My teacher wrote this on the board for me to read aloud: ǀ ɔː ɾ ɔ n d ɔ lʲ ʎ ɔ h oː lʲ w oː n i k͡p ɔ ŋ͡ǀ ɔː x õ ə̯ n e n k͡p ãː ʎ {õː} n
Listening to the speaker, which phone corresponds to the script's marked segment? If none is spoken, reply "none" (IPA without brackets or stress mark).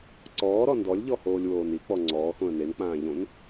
õ